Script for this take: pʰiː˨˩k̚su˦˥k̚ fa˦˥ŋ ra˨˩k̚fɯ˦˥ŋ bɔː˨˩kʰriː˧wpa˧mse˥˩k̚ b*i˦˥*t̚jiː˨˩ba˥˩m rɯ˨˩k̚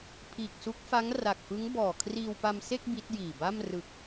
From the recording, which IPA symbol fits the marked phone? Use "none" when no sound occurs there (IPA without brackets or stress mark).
i˦˥